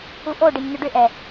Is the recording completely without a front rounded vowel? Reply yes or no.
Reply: no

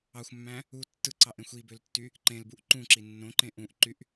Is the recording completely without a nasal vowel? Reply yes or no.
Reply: no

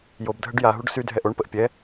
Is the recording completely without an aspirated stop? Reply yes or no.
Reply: yes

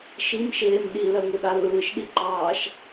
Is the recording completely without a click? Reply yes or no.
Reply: no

